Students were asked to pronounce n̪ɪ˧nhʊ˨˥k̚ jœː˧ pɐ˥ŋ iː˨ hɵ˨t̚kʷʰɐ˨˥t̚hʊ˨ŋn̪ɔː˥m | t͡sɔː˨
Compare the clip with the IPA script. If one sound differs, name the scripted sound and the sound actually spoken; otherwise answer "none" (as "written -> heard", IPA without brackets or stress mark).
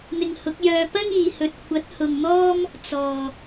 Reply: n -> ŋ